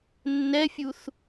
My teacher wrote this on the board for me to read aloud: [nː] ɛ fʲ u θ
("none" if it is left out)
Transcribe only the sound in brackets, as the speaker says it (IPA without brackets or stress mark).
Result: nː